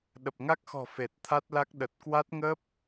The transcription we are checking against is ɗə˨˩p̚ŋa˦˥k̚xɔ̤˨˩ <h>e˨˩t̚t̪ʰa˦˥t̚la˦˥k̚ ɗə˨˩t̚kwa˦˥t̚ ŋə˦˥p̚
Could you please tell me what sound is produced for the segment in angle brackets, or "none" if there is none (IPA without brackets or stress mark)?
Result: f